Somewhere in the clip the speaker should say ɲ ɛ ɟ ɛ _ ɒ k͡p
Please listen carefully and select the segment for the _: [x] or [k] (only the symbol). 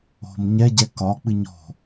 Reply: k